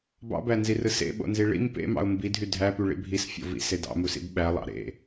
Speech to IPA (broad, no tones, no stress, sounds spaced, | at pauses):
b ɑ̰ b æ n z i r ɯ s ḛ ɓ o̰ n z i ɭ ḭ m p ḛ m ɑ̰ ʊ̯ m b i dʱ y dʱ æ p y ɭ ḭ bʱ i s fʲ o̰ v ḭ s e d ɑ̰ m u s ḭ b ɓ æ lˠ ɑ̰ ɾ ḛ